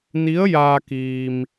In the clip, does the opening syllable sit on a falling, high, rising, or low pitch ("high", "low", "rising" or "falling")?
rising